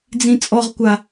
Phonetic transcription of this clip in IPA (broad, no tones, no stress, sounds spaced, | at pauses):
d͡z ĩ t͡sʼ ɔ ʁ kʷ a